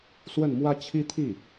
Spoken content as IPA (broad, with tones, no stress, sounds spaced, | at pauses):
s w ə˥˩ n m w ä˥ t͡ɕʰ i˥ t̪ʰ i˥˩